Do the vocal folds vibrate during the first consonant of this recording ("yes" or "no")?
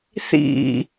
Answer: no